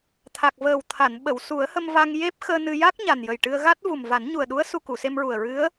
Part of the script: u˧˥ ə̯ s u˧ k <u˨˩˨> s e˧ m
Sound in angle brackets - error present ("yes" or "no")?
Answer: no